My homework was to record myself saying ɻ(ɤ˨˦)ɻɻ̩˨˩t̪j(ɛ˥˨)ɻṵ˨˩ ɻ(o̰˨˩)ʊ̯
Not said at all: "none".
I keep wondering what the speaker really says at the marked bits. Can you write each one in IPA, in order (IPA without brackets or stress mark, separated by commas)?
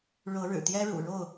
ɤ˨˦, ɛ˦, o˥˨